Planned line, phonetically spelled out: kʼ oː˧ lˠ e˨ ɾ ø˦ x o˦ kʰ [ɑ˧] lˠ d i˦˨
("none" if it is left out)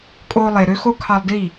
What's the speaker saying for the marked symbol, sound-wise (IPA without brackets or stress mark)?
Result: ɑ˧